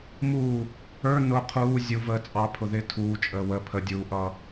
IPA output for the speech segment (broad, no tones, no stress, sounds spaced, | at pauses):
m uː | ə˞ n ʊ qʰ uː zʲ u v əː t͡sʼ ɑ pʰ ʊ ð ɪː tʰ uː t͡ʃʼ əː w ə pʰ ə dʲ uː ʔ ʌː